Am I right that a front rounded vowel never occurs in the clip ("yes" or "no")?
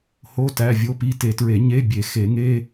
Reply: yes